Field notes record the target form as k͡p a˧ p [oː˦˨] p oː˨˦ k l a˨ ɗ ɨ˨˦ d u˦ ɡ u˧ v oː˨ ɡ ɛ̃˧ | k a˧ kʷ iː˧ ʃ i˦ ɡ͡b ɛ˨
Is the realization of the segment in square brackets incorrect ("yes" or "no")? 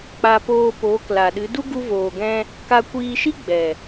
yes